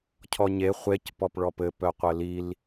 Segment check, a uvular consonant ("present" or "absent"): present